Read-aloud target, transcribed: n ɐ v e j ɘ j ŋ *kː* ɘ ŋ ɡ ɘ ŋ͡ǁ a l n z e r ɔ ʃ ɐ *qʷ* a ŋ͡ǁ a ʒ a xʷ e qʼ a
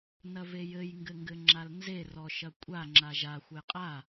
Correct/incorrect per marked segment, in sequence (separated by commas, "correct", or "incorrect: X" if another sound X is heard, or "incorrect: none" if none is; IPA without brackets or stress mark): incorrect: ɡ, incorrect: kʷʼ